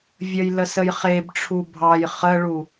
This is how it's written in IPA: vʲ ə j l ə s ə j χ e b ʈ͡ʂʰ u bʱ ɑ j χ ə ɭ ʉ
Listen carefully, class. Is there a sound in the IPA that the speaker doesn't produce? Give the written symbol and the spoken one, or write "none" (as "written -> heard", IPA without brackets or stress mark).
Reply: ʉ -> u